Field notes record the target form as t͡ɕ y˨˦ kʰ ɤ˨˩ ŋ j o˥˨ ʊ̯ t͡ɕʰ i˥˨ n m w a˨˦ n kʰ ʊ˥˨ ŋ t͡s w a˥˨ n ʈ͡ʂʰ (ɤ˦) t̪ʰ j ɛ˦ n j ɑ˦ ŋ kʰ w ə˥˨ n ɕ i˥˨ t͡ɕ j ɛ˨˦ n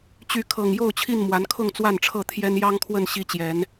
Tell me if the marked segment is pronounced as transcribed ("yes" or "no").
no